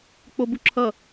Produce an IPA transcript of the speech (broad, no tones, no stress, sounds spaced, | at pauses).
k͡p o b u ǁʰ ʌ